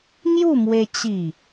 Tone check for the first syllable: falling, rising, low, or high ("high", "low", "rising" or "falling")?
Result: falling